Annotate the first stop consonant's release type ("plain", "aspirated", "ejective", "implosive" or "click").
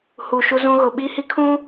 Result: implosive